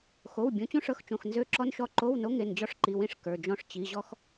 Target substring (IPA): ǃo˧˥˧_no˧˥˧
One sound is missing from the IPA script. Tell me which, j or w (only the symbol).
w